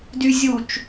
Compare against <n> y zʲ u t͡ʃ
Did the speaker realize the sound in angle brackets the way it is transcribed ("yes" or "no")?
no